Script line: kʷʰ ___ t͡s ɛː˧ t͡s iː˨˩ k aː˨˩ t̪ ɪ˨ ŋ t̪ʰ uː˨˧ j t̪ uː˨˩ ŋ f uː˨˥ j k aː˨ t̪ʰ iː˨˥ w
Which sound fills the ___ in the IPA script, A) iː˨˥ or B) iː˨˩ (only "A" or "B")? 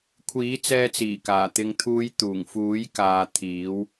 A